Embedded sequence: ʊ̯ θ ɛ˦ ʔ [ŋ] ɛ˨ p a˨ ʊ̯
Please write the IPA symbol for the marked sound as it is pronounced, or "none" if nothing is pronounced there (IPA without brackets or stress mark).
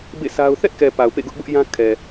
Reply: k